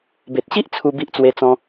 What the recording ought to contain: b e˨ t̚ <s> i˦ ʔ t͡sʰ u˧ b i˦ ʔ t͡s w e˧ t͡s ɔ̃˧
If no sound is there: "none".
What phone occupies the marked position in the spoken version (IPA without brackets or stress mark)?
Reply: ɕ